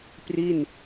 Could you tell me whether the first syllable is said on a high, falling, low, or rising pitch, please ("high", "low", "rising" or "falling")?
falling